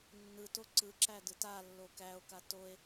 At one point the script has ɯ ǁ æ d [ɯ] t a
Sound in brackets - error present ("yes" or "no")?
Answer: no